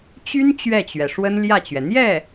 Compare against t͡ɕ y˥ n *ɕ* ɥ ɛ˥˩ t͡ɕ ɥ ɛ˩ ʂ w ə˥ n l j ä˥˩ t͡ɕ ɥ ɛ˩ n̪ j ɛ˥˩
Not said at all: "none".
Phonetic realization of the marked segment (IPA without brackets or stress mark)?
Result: t͡ɕ